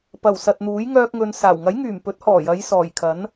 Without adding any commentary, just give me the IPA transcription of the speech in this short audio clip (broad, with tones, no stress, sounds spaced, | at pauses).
p ɐ˨˩ w s ɐ˨ t̚ n̪ uː˨˥ j ŋ œː˥ k̚ ŋ ɵ˧ n s aː˨˩ w ŋ ɐ˨˥ j ŋ yː˨˩ m p ɵ˨˥ t̚ h ɔː˨˩ j ɐ˨˧ j s ɔː˨˩ j kʰ ɐ˨˥ n